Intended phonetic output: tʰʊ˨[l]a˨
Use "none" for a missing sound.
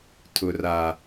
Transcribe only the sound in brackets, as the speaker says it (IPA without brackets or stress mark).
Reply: r